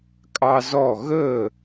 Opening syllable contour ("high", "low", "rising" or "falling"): high